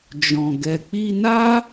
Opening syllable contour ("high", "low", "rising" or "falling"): low